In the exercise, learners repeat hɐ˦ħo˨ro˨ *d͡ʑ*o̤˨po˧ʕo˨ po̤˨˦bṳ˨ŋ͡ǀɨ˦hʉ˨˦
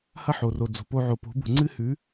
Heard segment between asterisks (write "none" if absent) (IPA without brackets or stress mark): d͡z